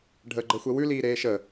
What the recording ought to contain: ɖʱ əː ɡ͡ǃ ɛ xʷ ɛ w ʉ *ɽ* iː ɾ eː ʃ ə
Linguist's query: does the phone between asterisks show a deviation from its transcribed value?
yes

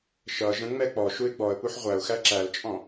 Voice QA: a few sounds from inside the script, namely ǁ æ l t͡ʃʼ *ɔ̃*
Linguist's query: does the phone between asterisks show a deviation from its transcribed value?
no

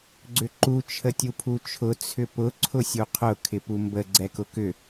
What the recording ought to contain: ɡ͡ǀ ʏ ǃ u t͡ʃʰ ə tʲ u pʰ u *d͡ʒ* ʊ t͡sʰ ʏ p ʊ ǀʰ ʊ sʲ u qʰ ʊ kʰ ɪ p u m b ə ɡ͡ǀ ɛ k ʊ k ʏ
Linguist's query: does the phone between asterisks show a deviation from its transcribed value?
yes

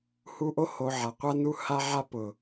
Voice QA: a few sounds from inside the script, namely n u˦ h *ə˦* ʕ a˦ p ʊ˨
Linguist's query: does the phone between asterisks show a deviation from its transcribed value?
yes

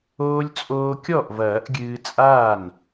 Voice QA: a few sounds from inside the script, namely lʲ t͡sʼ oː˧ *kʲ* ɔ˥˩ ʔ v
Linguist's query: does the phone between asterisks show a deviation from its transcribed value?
no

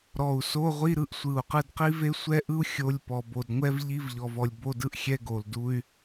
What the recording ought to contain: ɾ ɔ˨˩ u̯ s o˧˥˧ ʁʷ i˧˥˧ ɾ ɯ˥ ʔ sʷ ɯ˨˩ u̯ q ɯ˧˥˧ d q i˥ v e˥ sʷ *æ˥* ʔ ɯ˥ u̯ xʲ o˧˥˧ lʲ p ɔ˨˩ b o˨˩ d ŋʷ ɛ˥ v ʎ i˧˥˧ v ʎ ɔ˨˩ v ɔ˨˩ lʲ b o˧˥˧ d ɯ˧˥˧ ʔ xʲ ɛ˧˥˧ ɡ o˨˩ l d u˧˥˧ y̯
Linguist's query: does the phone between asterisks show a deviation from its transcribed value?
yes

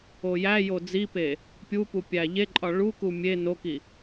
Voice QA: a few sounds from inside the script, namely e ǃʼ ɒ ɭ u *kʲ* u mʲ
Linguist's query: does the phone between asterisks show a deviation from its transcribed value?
yes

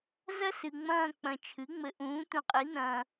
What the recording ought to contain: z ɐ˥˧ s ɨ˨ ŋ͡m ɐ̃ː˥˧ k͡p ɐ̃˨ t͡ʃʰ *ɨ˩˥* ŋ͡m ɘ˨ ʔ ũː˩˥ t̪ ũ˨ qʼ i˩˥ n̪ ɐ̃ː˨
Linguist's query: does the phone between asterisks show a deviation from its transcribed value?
no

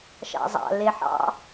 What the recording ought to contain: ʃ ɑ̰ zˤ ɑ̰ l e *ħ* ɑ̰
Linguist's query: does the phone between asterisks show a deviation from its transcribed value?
no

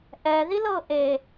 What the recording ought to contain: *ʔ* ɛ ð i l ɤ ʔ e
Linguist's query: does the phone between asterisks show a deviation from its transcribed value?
no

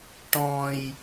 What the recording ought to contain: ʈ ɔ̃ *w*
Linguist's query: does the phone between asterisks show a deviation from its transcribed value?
yes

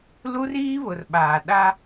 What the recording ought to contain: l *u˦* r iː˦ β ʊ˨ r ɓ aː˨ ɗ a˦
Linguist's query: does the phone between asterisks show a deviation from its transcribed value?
no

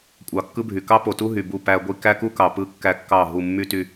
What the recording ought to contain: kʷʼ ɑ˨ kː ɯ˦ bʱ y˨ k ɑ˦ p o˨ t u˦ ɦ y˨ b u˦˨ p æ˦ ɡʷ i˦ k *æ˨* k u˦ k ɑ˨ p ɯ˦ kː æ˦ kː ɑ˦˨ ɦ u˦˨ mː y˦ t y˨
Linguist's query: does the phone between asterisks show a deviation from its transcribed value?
yes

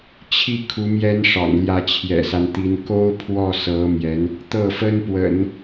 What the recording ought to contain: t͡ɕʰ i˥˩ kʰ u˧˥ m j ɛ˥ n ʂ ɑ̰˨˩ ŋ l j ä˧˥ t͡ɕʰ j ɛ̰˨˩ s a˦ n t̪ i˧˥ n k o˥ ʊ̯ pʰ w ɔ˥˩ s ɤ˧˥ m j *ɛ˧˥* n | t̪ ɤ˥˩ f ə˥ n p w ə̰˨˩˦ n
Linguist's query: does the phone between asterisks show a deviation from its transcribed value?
no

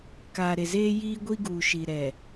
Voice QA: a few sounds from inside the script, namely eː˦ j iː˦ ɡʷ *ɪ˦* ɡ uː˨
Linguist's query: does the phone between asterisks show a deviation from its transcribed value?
yes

